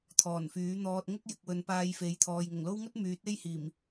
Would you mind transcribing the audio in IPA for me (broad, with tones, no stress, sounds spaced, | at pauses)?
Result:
t̪ʰ ɔː˨˩ n f yː˨˥ n̪ ɔː˧ t̚ ŋ ʊ˥ k̚ j ɪ˨ k̚ w ɵ˨ n p aː˧ j f e˨˥ j t̪ʰ ɔː˨ j ŋ ʊ˨˩ ŋ l o˥ w ŋ ɵ˥ t̚ m yː˨˥ t̚ e˥ j h iː˨˩ m